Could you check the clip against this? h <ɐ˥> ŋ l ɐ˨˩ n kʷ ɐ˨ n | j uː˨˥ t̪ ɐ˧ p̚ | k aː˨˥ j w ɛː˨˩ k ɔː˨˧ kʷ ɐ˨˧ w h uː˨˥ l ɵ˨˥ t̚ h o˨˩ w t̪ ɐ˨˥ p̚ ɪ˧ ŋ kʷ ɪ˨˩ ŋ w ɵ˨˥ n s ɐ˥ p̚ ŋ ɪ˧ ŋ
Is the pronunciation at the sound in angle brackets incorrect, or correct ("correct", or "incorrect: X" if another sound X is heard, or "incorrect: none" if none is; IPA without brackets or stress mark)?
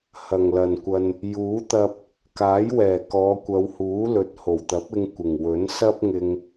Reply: incorrect: ɐ˨˩